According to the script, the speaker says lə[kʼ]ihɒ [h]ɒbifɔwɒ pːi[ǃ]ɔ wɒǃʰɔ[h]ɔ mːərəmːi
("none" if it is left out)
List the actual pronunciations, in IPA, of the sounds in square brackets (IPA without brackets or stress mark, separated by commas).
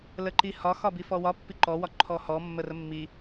ǃ, x, ǃ, h